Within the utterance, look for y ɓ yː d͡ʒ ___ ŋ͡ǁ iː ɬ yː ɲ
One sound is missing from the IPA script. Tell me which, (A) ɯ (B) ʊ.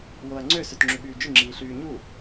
A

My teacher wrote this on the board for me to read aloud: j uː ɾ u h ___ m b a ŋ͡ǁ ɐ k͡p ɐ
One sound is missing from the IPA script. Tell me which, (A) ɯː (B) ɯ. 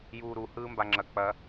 A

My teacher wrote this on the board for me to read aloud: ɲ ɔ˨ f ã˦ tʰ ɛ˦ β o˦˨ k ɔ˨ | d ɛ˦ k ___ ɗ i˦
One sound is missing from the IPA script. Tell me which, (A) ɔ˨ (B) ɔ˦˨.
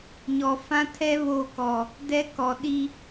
A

